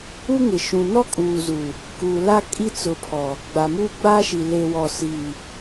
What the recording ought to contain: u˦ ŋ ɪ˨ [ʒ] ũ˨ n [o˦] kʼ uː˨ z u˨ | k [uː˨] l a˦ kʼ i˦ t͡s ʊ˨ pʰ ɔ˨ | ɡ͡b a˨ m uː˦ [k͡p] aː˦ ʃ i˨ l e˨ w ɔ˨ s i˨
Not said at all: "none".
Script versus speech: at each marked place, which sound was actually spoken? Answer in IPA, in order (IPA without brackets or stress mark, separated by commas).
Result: ʃ, ɔ˦, uː˨, ɡ͡b